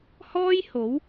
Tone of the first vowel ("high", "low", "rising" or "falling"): high